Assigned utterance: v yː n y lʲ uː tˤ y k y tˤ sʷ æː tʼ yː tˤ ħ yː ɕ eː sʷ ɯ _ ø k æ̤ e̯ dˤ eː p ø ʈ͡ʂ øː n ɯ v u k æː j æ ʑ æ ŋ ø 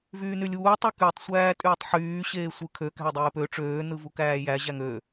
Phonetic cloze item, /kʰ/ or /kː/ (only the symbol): kʰ